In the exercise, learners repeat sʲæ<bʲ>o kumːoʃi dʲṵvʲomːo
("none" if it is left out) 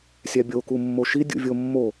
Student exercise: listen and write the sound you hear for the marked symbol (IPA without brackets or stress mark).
bʲ